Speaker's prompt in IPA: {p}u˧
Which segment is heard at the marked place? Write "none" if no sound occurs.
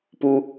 p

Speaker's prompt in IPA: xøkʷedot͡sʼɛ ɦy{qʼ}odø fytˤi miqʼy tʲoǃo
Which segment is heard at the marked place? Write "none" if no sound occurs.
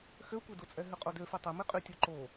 qʼ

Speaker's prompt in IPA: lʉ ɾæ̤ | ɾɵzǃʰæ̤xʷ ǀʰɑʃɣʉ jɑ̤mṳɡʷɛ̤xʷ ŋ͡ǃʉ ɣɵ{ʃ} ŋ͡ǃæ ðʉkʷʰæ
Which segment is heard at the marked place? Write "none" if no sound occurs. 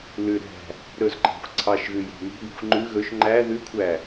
ʃ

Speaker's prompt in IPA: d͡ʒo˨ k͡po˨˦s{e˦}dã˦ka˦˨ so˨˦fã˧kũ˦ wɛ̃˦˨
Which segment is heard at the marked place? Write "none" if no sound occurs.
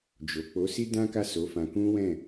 i˦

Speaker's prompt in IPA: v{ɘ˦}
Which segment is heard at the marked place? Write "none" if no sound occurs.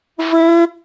ɘ˦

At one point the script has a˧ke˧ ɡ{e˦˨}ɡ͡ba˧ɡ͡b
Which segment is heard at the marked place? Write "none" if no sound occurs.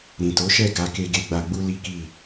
e˧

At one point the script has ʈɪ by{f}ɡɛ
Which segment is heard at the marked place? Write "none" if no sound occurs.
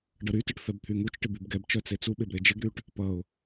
b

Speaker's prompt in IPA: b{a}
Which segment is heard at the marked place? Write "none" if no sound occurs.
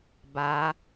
a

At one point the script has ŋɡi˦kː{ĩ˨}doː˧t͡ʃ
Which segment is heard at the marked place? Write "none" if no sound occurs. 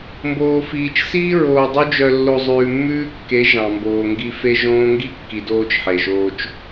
i˨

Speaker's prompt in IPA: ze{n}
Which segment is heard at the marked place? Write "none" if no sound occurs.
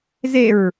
ɹ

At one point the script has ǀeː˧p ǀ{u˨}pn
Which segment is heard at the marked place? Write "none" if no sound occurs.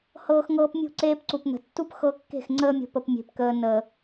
u˨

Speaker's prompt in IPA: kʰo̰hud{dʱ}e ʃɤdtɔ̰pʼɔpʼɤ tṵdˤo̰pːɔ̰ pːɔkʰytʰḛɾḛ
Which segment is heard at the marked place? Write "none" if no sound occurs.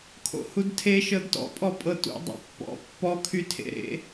tʰ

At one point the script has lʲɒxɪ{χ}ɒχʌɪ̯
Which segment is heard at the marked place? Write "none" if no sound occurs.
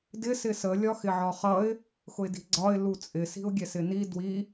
ʕ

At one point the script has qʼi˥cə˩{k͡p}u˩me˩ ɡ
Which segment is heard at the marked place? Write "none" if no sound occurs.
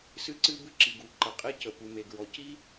p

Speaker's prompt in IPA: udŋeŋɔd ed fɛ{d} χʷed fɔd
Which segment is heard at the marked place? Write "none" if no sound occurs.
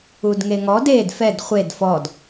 d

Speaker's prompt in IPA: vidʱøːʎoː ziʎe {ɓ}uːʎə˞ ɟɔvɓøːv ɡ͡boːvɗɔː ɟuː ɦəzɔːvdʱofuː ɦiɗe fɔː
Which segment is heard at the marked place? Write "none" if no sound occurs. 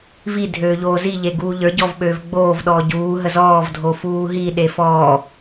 ɡ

